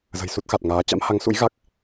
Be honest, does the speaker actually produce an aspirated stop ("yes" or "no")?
no